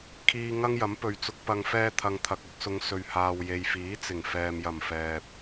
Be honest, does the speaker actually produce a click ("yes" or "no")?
no